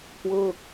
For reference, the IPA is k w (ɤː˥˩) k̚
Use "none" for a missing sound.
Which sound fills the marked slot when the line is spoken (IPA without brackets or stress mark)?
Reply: ɤː˥˩